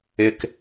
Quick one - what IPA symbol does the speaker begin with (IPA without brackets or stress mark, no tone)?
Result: ɪ